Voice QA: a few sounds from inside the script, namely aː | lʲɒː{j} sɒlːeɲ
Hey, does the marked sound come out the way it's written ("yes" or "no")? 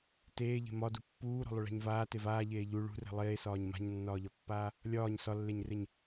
no